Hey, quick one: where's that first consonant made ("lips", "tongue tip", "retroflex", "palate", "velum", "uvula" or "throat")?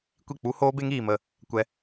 velum